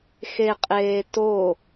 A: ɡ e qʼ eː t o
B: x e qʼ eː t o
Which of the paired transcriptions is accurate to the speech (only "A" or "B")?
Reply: B